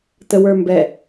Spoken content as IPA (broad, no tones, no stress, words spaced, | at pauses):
təwə˞mbɛ